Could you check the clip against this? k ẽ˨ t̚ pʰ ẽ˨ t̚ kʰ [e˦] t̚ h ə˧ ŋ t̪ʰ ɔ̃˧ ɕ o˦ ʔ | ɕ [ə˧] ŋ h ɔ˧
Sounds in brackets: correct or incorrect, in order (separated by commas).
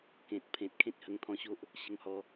incorrect, correct